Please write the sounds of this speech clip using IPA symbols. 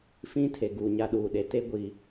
f ĩ˦ tʰ e˨ ɡ uː˨ ɲ a˦ ɗ uː˨ ɗ e˨˦ t e˦ ɡʷ i˨

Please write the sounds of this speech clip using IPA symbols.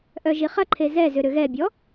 ʔ œ ʒ i χ ɐ ǃʰ e z ɛ z ʏ ɾ ʏ ɣ ɛ bʲ ɔ

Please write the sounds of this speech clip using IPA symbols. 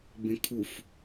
b ẽ kʰ u f

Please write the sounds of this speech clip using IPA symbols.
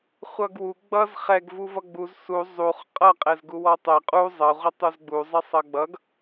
χʷ ʌ ɡ w u ɡ͡b ʌ z χ ɛ ɡ v u v ʌ ɡ͡b u z s u zˤ u χ qʼ ʌ qʼ ɛ z ɡ u w ɔ tˤ ɛ qʼ u zˤ ʌ ʁʷ ʌ tˤ u z ɡ͡b u zˤ ɛ sˤ ʌ ɡ͡b ʌ ɡ

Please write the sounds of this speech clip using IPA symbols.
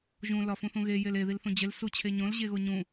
ʒ ũ l ɒ f ũ θ ũ ɣ e j e l e ð i l θ ũ d͡ʑ e l s u t͡ɕʰ e ɲ õ l ʑ e ɣ o ɲ ũ

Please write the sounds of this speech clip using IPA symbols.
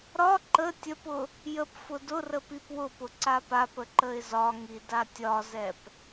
ɾ ɒ ǃ ə tʲ ə p ʊ | j ə p f ʊ d ʊ r ə p i p w ʊ p ʊ ǀ a p a p ə ǃ ə ɪ̯ z ɒ ŋ i d a tʲ ɒ z ɛ p

